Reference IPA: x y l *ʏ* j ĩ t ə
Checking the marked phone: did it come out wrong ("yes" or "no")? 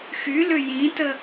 no